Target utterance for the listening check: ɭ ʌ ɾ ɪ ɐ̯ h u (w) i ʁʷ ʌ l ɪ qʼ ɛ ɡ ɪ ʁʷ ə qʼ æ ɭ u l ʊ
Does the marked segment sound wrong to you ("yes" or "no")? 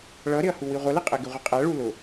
no